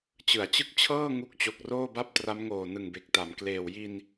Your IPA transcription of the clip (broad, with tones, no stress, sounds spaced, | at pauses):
t͡ɕ ɯ˩˦ a̯ t͡ɕ ɯ˦˥ k̚ t͡ɕʰ ɤː˥˩ ŋ u˦˥ k̚ t͡ɕ o˨˩ k̚ r oː˥˩ b a˥˩ p̚ t r a˦˥ m ŋ oː˨˩ n ɯ˨˩ ŋ b e˨˩ k̚ t a˩˦ m k l eː˨˩ w j i˧ n